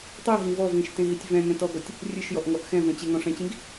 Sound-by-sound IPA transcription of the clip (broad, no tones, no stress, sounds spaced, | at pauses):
tˤ i ɦ ĩ v ɔ v ĩ ʃ t ẽ ɦ i tʲ v ɛ̃ ŋ ɛ̃ t ɔ ɡ ɔ tʲ | rʲ ɨ ʃ j ɔ ʔ ŋ ɔ ʔ x ɛ̃ v ɛ̃ t͡ɕ e ŋ ɔ̃ ʂ ɛ̃ t͡ɕ ĩ ɡ